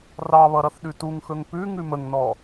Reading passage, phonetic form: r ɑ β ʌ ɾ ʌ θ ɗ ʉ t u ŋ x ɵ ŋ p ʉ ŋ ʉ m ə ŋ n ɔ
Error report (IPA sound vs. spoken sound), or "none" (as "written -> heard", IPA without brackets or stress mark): none